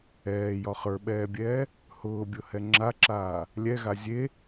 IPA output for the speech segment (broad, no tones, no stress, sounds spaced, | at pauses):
ɛː j ɒ χ ə˞ ɓ ɛː bʲ ɛː | h ʊː bʲ ʊ h ɛ ŋ͡ǁ a ǁ aː | lʲ ɛ ɣ a zʲ e